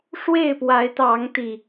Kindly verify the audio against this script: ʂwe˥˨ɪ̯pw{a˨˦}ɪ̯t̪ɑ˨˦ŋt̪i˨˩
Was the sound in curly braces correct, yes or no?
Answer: yes